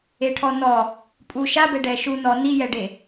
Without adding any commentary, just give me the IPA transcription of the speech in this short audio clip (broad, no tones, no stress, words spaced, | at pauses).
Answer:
eʈʰɔnɔ | pʼu ʃabɛ ɖɛʃu nɔ nijɛɖe